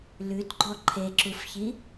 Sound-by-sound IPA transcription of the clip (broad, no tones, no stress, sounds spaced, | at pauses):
l ʉ t ɡ͡ǃ ɔ ǃʰ e ǁ u f ç i